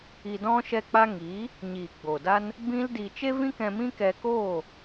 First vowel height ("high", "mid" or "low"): high